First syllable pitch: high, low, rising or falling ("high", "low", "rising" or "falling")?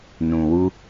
low